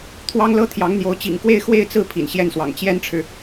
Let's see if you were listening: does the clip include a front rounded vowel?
no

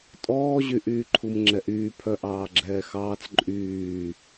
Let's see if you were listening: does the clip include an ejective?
yes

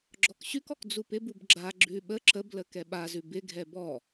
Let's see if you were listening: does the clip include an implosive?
yes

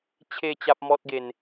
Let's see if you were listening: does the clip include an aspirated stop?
yes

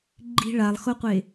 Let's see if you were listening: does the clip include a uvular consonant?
yes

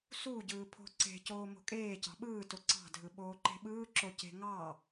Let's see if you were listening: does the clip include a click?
yes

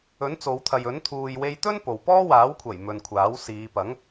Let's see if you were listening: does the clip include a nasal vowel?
no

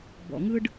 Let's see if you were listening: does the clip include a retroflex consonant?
yes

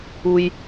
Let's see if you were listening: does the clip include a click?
no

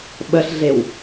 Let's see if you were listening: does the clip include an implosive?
yes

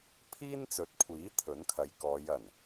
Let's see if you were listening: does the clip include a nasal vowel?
no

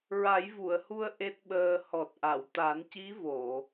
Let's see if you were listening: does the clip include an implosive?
yes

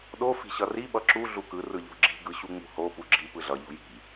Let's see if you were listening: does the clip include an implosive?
yes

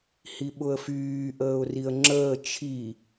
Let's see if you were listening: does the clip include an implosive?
yes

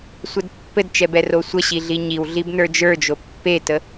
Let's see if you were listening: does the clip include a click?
no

